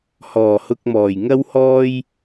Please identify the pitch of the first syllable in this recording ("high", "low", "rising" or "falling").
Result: low